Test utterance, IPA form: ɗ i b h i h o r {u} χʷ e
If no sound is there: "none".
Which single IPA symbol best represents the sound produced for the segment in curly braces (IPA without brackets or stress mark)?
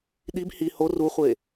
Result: u